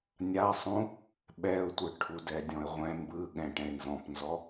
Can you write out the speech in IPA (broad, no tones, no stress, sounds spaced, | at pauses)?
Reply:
nʲ a sˤ ũ | ɓ ɛ ʊ̯ tʷ ɯ ʈʰ u d ɛ dʲ ɔ̃ ɪ̯ ʁʷ ɛ̃ m b ɯ ɠ ɛ̃ ʈ ɛ̃ ɪ̯ n z ɔ̃ p n z ɔ